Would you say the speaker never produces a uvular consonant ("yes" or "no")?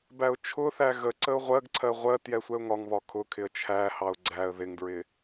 no